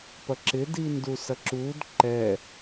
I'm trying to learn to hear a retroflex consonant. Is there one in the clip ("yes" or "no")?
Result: no